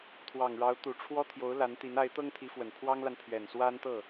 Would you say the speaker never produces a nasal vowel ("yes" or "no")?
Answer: yes